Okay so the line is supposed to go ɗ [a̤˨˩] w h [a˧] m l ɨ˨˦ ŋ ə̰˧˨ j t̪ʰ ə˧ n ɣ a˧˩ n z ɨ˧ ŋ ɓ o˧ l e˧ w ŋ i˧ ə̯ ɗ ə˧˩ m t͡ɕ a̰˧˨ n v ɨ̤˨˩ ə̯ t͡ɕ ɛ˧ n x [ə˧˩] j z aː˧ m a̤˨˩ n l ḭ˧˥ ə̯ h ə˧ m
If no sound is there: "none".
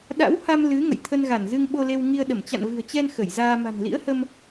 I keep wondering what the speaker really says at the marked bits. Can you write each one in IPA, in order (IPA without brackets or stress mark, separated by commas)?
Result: a̰˧˥, a˧, ə˧˩